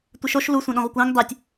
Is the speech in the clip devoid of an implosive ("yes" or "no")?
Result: no